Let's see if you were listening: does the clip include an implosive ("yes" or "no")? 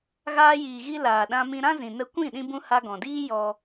yes